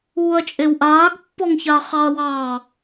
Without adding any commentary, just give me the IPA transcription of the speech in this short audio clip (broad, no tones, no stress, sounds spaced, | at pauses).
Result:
uː ɐ̯ t͡ʃʼ e w ʔ aː ɡ pː ɔ ŋ ç aː χ ɑ ɐ̯ w ɑ